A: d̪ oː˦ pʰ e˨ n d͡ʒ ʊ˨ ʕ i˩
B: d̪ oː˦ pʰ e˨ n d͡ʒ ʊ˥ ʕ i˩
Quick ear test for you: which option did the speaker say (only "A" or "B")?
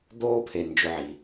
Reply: A